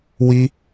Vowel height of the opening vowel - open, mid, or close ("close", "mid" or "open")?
close